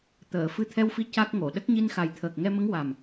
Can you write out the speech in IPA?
t̪əː˨˩˨ fɨ˧t̪ʰɛ˧wfi˧ ca˦˥k̚ŋo˨˩˨ ɗə˦˥k̚ɲi˧nxa˨˩j t̪ʰəː˨˩k̚ŋɛ˧mə˧˥ŋ wa˨˩m

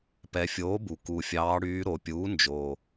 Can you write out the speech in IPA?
pɛ˩˧fʲoː˩˥bu˩ ku˩fʲɑː˩˧ɽyː˩˧ ɾo˩˧pʲuː˩˥ nd͡ʒoː˩

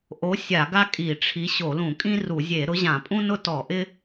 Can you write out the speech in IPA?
ʔo˨˦ sʲa˧˩˧ɡa˦ kʼi˧˩˧ʈ͡ʂʰi˨˦ ɕo˧˩˧lũ˧˩˧kʼĩ˦ ru˧˩˧zʲe˧˩˧ ɾʊ˨˦ʑã˧˩˧pʼũ˦nʊ˦ tɔ˧˩˧ʔɪ˦

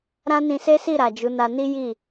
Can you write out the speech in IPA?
ɾã˦nĩ˧se˦si˦˨ ɾa˨d͡ʒu˨˦na˧ ni˦ji˦˨

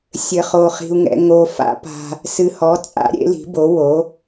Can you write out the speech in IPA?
sʲɘ˧χo˧χi̤˧u̯ŋɛ̰˧ ŋo˧ fa̰˨˥pa̤˧ | sɨ˧hɔ˨˥t͡sʼa̰˨˥ ɾʲḛ˨˥li̤˨˥bo˨˥ wo˨˥

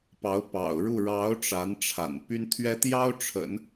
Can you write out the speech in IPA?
pɑ˧˥ʊ̯pɑ̰˨˩ʊ̯ɻu˥˩ ɻɑ˧˥ʊ̯ ʈ͡ʂa˧˥nʈ͡ʂʰa̰˨˩n py˥nt̪ʰɥɛ˥ t̪jɑ˥ʊ̯ʈ͡ʂʰə̰˨˩˦n

